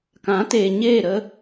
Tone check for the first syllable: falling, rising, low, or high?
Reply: rising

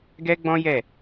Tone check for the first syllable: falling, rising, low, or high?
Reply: high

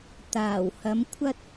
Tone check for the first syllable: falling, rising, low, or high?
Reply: low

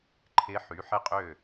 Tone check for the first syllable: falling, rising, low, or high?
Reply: rising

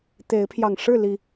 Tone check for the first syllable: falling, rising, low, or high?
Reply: rising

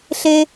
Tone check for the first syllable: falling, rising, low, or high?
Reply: high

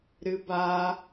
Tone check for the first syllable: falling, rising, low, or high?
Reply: high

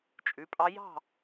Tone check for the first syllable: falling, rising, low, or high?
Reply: rising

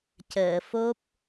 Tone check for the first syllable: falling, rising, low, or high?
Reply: low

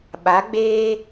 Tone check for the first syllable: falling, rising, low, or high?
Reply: rising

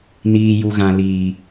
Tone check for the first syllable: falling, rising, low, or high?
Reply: low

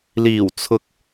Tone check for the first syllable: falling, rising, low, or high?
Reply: low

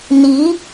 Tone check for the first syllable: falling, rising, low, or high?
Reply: rising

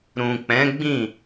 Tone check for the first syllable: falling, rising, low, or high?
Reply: low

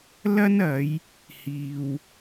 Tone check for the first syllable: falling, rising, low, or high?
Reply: high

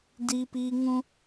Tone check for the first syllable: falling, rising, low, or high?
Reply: high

